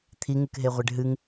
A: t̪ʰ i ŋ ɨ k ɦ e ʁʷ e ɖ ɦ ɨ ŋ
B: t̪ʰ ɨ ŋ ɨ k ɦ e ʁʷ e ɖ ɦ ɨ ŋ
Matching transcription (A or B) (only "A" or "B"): A